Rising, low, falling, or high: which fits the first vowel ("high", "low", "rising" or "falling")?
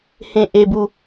low